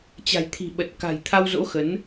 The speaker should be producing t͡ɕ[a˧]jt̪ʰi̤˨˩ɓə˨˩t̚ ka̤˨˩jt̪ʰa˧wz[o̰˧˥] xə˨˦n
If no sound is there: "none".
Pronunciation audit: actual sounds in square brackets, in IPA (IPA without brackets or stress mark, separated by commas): a̤˨˩, o̰˧˥